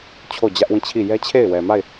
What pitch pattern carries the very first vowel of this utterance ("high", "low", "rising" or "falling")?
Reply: falling